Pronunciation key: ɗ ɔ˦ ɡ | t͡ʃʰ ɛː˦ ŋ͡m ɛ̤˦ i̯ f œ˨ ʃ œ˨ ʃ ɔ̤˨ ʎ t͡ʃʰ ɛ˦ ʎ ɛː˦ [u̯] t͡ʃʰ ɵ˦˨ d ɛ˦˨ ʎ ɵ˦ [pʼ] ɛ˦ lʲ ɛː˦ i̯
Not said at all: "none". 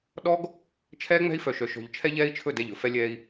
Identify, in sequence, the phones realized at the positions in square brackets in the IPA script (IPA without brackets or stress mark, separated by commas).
i̯, f